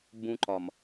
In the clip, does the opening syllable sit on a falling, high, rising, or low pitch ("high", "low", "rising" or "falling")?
high